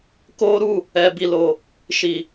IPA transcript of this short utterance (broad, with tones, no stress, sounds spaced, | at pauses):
k o˦ ɾ u˦˨ | ɛ˨ b i˨ l o˨ | ʃ i˨